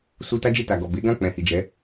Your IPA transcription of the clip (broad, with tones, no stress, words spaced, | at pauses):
su˧ ta˦d͡ʒe˦˨ta˨ ɡɔ˨be˨˦ɡã˦˨ k͡pɛ̃˨hi˨d͡ʒɛ˨˦